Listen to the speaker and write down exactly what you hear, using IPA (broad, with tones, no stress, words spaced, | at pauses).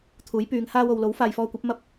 t̪ʰuː˨˥jpyː˨˧ŋhaː˥wo˧w lo˨˥wfaː˨jfɔː˧kʷɐ˨˥p̚ mɐ˥p̚